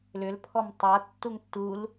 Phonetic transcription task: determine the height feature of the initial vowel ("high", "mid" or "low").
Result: high